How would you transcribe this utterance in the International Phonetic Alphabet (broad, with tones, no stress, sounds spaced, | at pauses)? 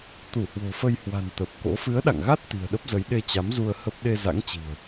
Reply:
t̪ u˧˩ h w o̤˨˩ f ə˧ j h w a̤˨˩ n t̪ ə˨˩ p̚ k o̰˧˥ f ɨ˨˦ ə̯ ɗ a̰˧˨ ŋ ɣ a˦˥ t̚ t̪ i̤˨˩ ə̯ ɗ ə˦˥ p̚ z ə˨˦ j ɗ e˧ t͡ɕ a˨˦ m z u˧ ə̯ h ə˦˥ p̚ ɗ e˧ z a̰˧˥ ŋ t͡ɕ i̤˨˩ ə̯